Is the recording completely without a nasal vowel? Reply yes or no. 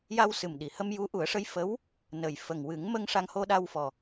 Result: yes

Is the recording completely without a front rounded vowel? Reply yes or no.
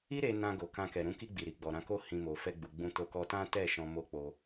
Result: yes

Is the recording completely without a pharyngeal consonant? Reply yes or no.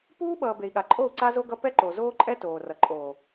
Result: yes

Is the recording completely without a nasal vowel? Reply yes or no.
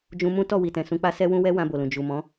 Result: no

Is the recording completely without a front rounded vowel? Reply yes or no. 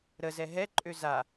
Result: no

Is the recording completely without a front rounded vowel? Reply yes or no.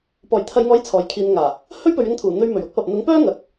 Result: no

